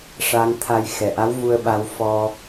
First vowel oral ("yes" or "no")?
yes